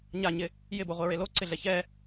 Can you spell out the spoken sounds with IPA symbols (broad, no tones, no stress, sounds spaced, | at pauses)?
ɲ a ɲ ɪ | j ɪ b o ʁʷ e ɹ e l o ǀ ɪ ɮ ɛ ç ɛ